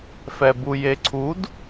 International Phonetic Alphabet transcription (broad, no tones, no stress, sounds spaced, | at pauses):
f ɛ b u j e ǀʰ u d